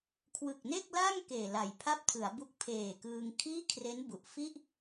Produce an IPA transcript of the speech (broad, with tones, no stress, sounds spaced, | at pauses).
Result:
kʰ w ɯ˨˩ k̚ n e˥˩ k̚ l a˥˩ ŋ k eː˨˩ l a˨˩ j pʰ a˥˩ p̚ tʰ ɯ˩˦ a̯ b u˦˥ k̚ pʰ eː˨˩ k ɯː˧ ŋ kʰ iː˥˩ kʰ r e˦˥ n b u˨˩ ʔ f i˥˩ ʔ